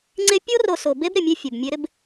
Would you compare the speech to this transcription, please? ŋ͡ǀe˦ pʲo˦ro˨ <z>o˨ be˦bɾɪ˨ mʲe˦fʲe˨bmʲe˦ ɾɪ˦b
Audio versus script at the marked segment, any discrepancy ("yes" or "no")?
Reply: yes